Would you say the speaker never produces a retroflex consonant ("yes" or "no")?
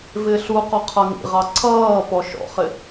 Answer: yes